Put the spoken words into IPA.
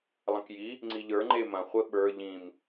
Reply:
lˠ ɐ̃ k j i | ŋ͡ǀ i ʎ ə˞ ŋ͡ǃ e m ɐ̃ χʷ ɘ ɓ ə˞ ʎ ĩ m

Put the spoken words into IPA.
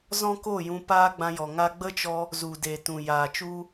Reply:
z ɔ̃˦ k o˦˨ j ũ˧ p aː˦ ɡ͡b ã˧ j ɔ˨ ŋ a˦ ɡ͡b ə˦ t͡ʃ ɔ˧ | z u˨ d e˨ t ũ˨ j aː˨ t͡ʃ u˦

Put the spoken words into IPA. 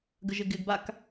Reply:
ɡ ə ʒ ɪ ɡ ɪ ɡ b a k

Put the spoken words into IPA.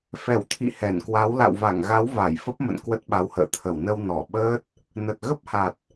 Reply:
f ɛ˧˩ w t̪ʰ ḭ˧˨ h ɛ˧˩ n k w a˨˦ w l a̰˧˨ w v a˧˩ ŋ ɣ a˨˦ w v a˧˩ j f ə˦˥ p̚ m ə̰˧˨ n k w ə˦˥ t̚ ɓ a˨˦ w h ə̰ː˧˨ t̪ʰ ə˧˩ w n ə˧ w n ɔ˧˩ ɓ əː˦˥ t̚ | n ə˨˩ t̚ ɣ ə˦˥ p̚ h a˨˩ t̚

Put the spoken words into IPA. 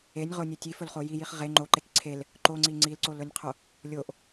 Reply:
e nʲ ʁ o nʲ e tʲ i f ɵ l χ o j i j i χ ʁ e ŋ͡ǃ o ǃ e k ǀʰ e l | ǃ o ŋ͡ǀ i ŋ͡ǀ i l ǀ o l ɵ nʲ qʰ o | lʲ o ʔ

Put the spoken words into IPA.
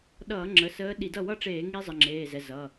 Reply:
ɗ ʌː˧˩˧ ŋ͡ǁ ə˩˧˩ s əː˨˦ ɗ i˧˩˧ d ʌ˥˩ w ʌ˥˩ ʈ͡ʂ eː˧˩˧ ŋ i˦˥ zˤ ə˩˧˩ ŋ͡ǁ eː˩˧˩ z ɛ˩˧˩ z ʌ˩˧˩

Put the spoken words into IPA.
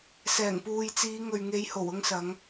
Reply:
s ɛː˨˩ ŋ p uː˨ j t͡s iː˨˧ ŋ ɵ˨ ɥ ŋ e˨˧ j h o˨˩ w ʊ˧ ŋ s ɐ˨˧ ŋ

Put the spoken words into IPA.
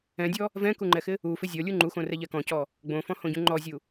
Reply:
ɛ̃ dʲ ɔ | v ɛ̃ k u ŋ͡ǃ ɛ x ɪ | u f ɪ zʲ ɔ lʲ u ŋ͡ǃ u x õ r ɛ ʎ ɛ k ɔ̃ c ɔ | ɡ͡b õ f ɔ̃ h õ ɟ ũ ŋ͡ǃ ɔ zʲ u

